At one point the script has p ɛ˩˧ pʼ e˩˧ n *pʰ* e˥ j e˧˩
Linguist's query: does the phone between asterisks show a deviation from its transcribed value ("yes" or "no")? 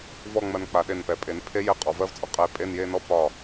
no